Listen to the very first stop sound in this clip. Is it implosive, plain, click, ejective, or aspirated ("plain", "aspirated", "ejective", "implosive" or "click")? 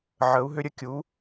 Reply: plain